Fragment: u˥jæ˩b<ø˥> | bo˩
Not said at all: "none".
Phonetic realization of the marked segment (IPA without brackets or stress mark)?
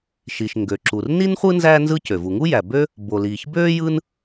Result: ø˥